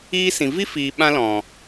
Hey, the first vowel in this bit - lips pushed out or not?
no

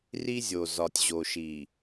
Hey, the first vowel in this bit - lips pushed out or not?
no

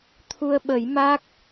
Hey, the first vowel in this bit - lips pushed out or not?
yes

